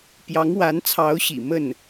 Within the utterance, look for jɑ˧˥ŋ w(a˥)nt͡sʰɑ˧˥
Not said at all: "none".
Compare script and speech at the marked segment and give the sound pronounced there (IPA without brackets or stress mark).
a˧˥